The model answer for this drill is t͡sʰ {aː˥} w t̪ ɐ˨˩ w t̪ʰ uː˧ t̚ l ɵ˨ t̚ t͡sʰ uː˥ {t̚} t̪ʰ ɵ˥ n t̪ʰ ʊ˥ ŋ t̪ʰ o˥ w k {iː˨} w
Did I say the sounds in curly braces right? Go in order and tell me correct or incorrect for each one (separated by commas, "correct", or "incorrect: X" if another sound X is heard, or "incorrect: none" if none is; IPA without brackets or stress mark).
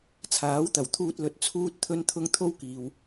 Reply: incorrect: aː˨˥, correct, correct